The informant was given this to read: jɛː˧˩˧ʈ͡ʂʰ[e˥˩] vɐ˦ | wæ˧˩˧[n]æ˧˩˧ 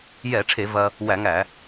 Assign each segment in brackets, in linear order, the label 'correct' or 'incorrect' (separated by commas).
incorrect, incorrect